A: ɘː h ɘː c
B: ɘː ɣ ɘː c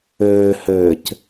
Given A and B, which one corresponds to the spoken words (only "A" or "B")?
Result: A